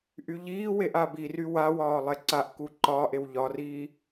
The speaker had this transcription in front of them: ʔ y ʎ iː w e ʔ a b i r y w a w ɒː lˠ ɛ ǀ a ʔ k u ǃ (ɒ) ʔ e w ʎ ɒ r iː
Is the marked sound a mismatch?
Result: yes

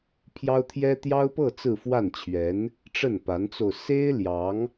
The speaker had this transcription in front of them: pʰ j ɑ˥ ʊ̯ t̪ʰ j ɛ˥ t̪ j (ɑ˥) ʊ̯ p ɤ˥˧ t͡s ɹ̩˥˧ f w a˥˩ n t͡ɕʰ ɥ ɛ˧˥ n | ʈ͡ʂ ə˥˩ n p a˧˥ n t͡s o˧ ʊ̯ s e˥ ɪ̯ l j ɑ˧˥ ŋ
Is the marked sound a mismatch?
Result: no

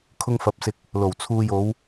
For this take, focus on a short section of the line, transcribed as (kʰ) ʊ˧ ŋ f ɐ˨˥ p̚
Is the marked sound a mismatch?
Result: no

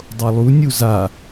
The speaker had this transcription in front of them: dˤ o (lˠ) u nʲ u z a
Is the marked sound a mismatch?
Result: no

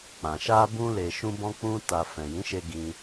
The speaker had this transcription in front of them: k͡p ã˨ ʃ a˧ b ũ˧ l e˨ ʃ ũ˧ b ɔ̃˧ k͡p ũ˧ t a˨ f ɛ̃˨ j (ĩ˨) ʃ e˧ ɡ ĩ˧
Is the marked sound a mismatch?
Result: yes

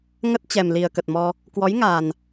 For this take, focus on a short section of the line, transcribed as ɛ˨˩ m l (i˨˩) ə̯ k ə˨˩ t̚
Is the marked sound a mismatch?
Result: no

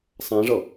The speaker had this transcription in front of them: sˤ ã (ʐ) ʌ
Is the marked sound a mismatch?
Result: no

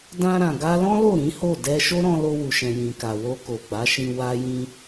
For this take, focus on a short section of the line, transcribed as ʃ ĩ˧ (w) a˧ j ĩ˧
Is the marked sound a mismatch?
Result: no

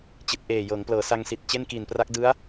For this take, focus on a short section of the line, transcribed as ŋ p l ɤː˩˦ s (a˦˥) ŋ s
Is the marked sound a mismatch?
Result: yes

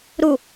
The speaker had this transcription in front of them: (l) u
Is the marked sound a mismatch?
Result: yes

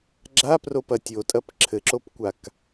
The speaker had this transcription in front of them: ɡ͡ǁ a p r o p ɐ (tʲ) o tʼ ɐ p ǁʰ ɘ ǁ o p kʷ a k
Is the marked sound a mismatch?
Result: no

